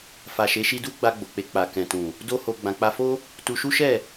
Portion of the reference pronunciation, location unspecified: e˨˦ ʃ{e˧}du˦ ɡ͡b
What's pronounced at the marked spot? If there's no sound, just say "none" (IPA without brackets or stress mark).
i˧